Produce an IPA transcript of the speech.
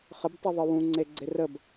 χ ə b tˤ i ðˤ ɤ w ũ ŋ͡ǀ e ɡ͡ǀ e r ə b

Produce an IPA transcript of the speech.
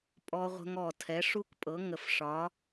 pʼ ɔ˦˥ ʁʷ ə̤˦˥ ŋ ɔ˨˩ tʰ ɛ˩˥ ʂ u˦˥ k pʼ ɤ˩˥ ŋ ə˨˩ f ʂ ɒ˩˥

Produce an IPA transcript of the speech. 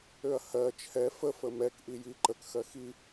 ø ɐ̯ h ɜ t͡ʃʰ ɛ f ə f ə m ɛ k ʔ i j i ǃ ə k x ɜ x i

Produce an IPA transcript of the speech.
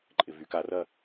ǃʼ ɪ v y k a r ɐ

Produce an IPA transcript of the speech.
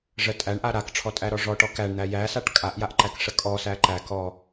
ʐ ə tʼ æ ɳ ʔ a ɾ a k ʈ͡ʂʰ ɔ tʼ æ ɾ ɔ ʐ ɔ ʈ ɔ k æ ɳ n̪ æ j æ s a ʈ kʼ a ʔ j a ʔ ǃ æ k ʂ ə kʼ ɔ s æ ǃ æ k ɔ

